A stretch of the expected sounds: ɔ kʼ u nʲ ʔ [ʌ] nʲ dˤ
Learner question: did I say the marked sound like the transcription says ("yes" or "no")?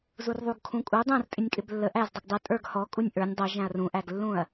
no